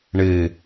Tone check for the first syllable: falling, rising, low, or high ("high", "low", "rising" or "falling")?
low